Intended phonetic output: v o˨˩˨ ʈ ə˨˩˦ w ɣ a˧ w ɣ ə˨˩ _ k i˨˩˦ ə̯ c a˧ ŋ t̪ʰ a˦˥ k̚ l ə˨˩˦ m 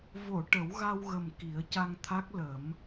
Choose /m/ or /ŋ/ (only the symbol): m